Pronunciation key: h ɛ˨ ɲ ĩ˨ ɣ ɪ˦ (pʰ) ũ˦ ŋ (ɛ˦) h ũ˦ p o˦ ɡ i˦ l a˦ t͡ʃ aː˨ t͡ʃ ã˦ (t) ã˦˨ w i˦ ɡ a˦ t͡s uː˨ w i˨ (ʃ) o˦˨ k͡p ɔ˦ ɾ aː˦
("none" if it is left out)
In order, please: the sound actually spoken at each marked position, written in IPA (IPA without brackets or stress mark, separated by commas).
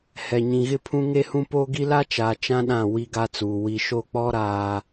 pʰ, e˦, ɗ, ʃ